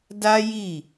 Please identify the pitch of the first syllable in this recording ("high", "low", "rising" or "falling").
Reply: high